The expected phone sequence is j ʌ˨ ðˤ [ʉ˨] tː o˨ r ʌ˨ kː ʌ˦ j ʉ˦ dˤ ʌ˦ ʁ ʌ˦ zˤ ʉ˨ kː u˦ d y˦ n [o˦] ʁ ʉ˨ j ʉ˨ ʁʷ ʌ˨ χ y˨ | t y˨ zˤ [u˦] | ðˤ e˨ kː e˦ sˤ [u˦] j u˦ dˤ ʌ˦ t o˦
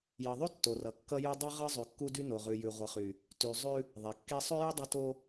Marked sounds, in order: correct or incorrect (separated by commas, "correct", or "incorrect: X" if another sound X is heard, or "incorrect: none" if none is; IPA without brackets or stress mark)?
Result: incorrect: ʉ˦, incorrect: o˨, incorrect: ʉ˦, incorrect: ʉ˦